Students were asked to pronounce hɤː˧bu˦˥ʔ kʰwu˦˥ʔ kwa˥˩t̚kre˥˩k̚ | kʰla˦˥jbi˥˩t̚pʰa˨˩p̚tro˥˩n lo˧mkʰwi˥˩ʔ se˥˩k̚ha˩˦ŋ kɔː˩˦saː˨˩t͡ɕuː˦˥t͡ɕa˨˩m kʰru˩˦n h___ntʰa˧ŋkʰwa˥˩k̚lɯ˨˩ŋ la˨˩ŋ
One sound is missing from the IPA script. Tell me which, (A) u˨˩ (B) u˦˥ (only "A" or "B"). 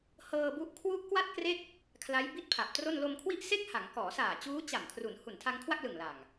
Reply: A